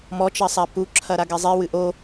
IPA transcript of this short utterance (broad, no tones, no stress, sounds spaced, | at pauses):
m ɔ t͡ʃ ɐ sˤ a p u ǁʰ ɐ ɾ a ɡ ɛ zˤ i w ɨ ʔ o